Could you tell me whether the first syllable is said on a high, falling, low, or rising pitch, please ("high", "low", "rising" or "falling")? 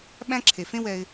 high